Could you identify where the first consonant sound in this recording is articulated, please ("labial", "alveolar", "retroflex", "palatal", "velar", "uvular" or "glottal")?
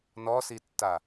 alveolar